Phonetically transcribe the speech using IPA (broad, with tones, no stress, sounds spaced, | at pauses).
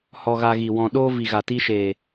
h ɔ˧ ɣ a˧ ɣ i˨ w ɔ̃˨ ɗ o˦ v i˨ ɣ a˨ t i˧ ʃ eː˨